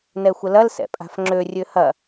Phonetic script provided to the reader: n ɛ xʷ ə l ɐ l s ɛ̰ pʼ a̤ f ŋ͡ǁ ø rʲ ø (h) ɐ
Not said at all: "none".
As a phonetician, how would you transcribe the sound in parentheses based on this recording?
h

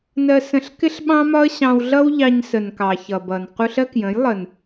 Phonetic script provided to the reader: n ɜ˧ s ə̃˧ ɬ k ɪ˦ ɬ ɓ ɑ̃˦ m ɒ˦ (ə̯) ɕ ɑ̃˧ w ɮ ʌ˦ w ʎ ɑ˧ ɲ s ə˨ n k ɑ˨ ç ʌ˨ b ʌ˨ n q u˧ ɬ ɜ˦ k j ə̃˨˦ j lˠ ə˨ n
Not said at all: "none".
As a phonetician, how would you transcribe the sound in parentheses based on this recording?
ə̯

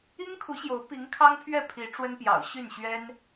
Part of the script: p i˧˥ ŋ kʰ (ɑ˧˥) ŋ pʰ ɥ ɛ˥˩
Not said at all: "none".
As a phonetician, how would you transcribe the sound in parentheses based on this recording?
ɑ˥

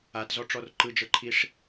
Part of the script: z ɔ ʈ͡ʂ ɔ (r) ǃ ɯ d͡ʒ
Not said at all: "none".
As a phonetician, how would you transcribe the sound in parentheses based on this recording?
r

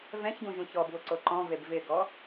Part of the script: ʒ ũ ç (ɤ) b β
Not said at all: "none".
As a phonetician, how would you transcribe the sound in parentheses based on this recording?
ɔ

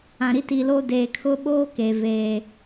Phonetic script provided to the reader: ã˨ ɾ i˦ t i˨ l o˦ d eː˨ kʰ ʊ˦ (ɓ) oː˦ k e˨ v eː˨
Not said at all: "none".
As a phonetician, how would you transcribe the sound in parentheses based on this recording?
ɓ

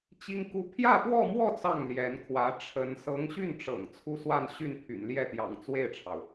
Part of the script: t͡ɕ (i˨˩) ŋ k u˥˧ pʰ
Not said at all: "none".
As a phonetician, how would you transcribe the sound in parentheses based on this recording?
i˥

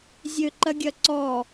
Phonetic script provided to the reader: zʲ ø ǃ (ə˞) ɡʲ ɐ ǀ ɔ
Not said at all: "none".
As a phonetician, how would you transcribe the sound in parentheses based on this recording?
ɐ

